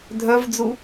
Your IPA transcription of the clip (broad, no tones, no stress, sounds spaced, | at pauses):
dʱ œ v d͡z u